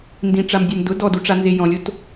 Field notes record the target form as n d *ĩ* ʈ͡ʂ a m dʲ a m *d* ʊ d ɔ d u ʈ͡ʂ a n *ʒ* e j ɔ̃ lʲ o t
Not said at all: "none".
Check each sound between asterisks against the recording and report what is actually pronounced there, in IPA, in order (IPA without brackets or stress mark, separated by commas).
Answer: ĩ, d, z